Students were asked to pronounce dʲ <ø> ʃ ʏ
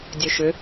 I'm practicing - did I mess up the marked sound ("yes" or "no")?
no